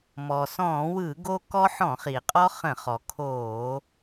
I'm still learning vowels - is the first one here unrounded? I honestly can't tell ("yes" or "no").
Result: no